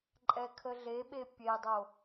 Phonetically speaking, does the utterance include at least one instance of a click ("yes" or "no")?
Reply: yes